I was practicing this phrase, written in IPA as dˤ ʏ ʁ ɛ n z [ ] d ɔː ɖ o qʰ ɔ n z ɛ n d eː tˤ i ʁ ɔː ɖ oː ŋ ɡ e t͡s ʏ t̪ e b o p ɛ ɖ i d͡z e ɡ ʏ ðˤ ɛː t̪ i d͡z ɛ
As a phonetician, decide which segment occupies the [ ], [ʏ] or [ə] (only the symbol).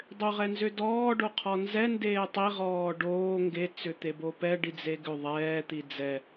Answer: ʏ